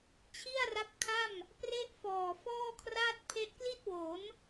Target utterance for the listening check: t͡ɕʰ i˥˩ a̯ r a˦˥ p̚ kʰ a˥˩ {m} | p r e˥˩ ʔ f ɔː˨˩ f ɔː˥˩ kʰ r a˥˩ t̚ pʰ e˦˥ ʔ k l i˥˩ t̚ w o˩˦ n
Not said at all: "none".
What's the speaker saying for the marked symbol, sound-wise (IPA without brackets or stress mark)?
m